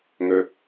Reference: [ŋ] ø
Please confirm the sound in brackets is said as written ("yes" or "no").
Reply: yes